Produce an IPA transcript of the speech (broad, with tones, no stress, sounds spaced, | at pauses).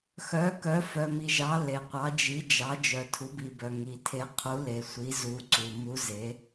x œ˩˥ k œ˩˥ f œ˩ m i˩ ʒ ɑ˩˥ l e˩ qʷ ɑ˩˥ d͡ʒ i˩˥ d͡ʒ ɑ˩˥ d͡ʒ œ˩ tʰ u˩˥ b i˩ b œ˩ ŋ i˩ tʰ e˩˥ qʰ u˩˥ l e˩ sʷ i˩˥ z u˩˥ ǀ u˩ m u˧˥ z e˩˥